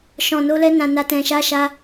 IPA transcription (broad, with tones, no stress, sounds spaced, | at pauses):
ʃ ɔ̃˨ n o˧ l ɛ˧ n ã˨ n a˨ t ɛ̃˨ ʃ a˧ ʃ a˧